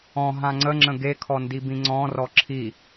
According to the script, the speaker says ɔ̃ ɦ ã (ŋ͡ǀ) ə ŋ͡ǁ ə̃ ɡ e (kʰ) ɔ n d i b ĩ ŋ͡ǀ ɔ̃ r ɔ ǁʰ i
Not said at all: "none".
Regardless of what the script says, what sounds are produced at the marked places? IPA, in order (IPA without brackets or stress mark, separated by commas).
ŋ͡ǀ, kʰ